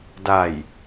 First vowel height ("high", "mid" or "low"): low